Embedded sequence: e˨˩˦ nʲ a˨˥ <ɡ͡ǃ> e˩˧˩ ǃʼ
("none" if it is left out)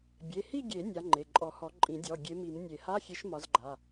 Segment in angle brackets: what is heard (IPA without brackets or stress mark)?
ŋ͡ǃ